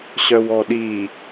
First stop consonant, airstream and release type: implosive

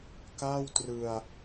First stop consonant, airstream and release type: plain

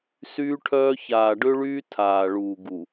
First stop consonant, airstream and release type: aspirated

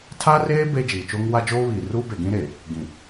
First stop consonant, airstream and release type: aspirated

